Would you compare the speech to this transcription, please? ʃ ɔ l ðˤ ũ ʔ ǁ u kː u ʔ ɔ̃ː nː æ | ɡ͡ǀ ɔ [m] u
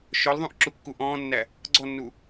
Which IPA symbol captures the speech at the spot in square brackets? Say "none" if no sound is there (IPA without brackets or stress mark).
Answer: nː